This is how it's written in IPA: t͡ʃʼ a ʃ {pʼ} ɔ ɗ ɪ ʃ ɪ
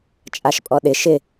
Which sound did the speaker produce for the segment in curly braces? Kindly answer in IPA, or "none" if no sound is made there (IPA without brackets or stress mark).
pʼ